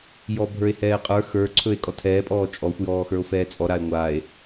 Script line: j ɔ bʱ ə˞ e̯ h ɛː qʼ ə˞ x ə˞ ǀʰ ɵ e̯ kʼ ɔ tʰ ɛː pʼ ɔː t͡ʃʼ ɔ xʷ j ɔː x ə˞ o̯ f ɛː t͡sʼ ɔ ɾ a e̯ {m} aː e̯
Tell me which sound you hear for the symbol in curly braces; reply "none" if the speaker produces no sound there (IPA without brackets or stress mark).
ŋʷ